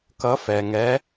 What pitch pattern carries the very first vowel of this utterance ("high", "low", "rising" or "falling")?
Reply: rising